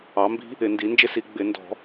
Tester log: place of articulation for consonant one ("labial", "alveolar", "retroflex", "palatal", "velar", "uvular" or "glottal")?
labial